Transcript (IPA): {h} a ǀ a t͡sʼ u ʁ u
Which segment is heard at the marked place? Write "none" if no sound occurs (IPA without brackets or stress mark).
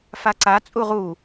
f